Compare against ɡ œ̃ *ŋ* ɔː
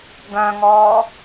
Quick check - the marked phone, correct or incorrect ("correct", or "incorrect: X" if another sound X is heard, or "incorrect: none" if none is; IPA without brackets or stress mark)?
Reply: correct